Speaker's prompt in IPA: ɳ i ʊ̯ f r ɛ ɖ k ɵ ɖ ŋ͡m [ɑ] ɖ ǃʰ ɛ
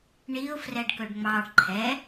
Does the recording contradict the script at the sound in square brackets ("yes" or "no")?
no